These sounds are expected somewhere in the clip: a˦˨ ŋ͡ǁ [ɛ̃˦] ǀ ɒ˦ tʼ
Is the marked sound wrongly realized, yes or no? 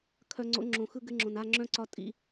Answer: yes